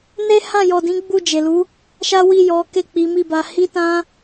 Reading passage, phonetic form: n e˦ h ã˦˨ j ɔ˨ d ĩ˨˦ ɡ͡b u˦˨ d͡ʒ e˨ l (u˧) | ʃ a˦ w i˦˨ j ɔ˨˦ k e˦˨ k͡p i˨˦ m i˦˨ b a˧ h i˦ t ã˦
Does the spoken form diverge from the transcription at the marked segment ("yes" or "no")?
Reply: yes